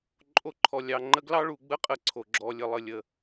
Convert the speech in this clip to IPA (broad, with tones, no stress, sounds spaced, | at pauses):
ǃʼ o˧ ǃʰ ɔ˨ lʲ ɑ˨ ŋ͡ǃ ə˧ ɡ l ɑ˦ ɭ u˨ ɡ͡b ə˦ qʼ ə˦ ǀʰ o˨ ɡ͡ǁ ɔ˨ lʲ ə˨ lˠ ə˨ lʲ ə˨